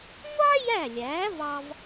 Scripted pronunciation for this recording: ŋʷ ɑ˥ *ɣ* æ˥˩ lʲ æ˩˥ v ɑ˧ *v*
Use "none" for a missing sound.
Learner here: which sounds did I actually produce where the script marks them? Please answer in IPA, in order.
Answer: j, v

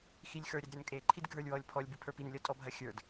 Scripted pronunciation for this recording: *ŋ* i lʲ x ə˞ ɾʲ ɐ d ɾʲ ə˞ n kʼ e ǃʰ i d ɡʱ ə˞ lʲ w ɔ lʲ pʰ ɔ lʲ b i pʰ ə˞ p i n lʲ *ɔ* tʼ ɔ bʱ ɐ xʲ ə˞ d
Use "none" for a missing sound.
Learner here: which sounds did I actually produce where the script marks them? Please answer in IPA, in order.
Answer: x, ɔ

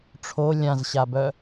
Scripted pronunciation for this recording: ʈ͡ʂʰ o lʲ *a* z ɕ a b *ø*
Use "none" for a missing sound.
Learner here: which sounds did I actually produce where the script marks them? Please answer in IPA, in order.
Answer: ã, œ

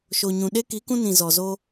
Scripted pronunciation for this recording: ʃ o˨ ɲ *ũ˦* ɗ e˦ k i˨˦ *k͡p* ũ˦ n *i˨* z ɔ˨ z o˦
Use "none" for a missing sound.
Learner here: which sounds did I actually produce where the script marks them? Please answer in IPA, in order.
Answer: ũ˨, k, ĩ˨

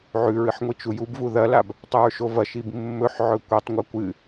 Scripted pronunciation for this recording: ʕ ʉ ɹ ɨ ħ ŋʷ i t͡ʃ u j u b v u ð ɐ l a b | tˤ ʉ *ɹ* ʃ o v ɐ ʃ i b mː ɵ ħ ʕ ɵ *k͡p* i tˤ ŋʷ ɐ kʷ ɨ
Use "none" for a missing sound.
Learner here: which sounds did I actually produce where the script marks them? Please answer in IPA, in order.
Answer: ɹ, kʷ

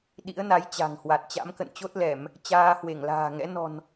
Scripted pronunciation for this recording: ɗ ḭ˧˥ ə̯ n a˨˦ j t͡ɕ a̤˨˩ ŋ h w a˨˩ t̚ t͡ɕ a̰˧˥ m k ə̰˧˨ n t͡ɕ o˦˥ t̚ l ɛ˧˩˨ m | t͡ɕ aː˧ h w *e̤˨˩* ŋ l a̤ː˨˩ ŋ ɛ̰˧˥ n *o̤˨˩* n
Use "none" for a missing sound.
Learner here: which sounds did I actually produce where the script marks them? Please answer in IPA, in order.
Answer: e˧˩, ɔ̤˨˩

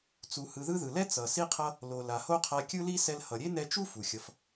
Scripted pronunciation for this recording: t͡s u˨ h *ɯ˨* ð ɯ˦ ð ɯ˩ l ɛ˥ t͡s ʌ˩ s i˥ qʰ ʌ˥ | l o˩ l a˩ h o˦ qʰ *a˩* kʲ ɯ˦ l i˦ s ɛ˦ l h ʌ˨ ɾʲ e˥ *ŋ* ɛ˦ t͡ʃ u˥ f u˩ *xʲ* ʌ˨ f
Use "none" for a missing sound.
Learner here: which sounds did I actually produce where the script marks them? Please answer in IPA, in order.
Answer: ɯ˨, a˨, n, xʲ

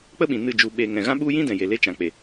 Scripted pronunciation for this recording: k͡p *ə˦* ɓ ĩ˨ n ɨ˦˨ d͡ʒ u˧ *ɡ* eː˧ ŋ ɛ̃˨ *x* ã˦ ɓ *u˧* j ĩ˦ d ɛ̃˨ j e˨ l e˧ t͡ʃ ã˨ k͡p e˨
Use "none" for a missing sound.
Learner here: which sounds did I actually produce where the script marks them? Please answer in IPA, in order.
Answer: ə˦, ɓ, ɣ, u˦

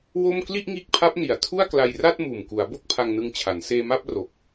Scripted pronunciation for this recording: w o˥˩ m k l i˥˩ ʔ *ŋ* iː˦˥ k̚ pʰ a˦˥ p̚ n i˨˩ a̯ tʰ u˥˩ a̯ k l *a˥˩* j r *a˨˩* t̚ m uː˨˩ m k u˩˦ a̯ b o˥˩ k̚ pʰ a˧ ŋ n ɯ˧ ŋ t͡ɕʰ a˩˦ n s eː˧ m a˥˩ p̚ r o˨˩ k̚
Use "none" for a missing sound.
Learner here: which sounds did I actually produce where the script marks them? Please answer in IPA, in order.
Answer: ŋ, a˧, a˥˩

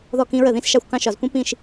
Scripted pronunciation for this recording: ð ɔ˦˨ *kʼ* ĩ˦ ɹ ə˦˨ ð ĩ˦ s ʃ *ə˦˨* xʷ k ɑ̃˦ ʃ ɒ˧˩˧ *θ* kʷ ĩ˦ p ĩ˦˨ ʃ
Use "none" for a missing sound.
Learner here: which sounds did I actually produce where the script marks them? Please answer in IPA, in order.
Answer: k, ɑ˦˨, z

